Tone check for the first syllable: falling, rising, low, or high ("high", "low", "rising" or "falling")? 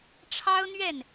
high